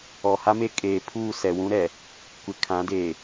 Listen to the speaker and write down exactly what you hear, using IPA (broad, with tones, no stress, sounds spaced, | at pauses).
ɔ˨ h a˦ m e˦ kʼ eː˨ pʰ uː˦˨ s ɛ˨ w ũ˦ ɾ ɛ˨ | kʷ ɪ˨ kʰ ã˨˦ d eː˨